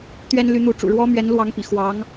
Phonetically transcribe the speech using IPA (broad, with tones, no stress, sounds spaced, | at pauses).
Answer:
t̪ ɥ ɛ˥ n l y˧˥ n̪ u˧˥ ʈ͡ʂ ṵ˨˩ ɻ w ɔ˥ m ɥ ɛ˧˥ n l w ɑ˧˥ ŋ p ḭ˨˩ x w ɑ˧˥ ŋ